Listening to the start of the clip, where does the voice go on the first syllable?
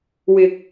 low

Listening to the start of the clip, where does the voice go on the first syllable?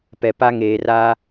low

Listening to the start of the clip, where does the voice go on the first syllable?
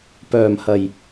low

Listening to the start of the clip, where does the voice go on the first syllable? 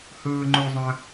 low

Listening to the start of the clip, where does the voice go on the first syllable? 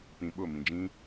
low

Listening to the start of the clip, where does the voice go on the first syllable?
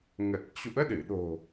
low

